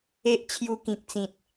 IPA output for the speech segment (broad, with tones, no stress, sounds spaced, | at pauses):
e˦ ʔ t͡ɕʰ j u˧ k ĩ˨ k̚ t͡s ĩ˨ t̚